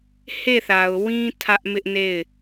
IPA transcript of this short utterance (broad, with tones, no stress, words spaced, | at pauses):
he˦˨θa˨ʊ̯wĩ˦ tʰä˦ʔmɪ˦ʔne˦˨ɪ̯